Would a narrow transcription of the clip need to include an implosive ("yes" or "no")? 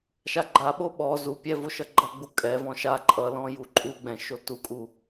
yes